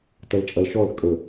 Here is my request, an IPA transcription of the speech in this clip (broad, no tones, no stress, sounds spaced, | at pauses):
t ɐ l t͡ʃʼ ɐ l ʃ ɔ l kʼ ə